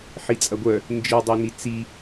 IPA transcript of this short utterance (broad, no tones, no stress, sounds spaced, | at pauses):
ħ i t͡sʼ ɐ ɡʷ œ | n d͡ʒ i dˤ o n i t͡s i